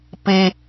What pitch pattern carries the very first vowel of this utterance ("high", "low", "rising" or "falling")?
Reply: high